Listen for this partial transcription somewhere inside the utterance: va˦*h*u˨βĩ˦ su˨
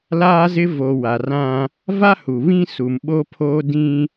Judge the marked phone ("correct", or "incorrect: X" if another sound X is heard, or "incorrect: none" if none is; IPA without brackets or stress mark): correct